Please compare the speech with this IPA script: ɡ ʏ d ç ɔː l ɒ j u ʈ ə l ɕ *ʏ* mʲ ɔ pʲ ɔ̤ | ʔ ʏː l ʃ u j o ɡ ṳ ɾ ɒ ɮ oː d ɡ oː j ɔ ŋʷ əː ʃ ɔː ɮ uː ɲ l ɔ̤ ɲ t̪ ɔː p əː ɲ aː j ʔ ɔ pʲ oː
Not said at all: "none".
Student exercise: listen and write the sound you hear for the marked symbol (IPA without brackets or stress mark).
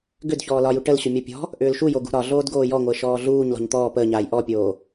ʏ